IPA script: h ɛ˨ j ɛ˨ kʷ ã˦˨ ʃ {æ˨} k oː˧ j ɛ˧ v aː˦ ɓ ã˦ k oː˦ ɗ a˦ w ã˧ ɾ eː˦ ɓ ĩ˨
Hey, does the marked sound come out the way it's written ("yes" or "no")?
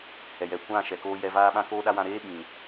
no